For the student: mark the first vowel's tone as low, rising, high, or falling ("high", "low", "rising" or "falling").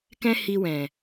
high